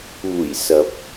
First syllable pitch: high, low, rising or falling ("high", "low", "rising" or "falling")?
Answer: low